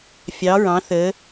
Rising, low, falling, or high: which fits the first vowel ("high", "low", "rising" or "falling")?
rising